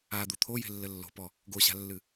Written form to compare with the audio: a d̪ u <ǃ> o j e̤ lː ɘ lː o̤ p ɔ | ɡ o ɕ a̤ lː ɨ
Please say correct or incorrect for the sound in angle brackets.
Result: incorrect